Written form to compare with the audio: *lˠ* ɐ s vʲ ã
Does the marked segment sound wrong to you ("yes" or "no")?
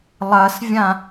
no